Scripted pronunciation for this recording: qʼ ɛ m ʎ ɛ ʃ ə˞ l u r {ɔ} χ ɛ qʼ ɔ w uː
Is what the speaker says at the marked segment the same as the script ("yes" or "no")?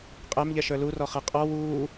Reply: yes